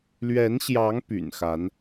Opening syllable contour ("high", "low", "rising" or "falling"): rising